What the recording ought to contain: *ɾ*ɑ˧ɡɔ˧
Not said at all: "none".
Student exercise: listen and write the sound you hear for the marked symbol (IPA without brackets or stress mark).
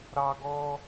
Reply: ɾ